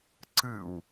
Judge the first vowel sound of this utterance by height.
high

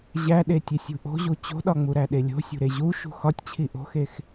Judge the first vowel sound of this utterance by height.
low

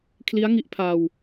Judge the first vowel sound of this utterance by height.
high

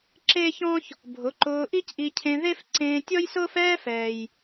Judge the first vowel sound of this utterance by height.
mid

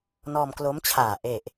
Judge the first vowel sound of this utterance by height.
mid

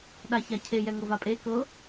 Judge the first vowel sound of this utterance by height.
low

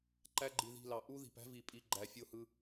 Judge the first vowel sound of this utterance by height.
low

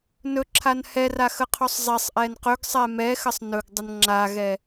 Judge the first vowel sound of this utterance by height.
mid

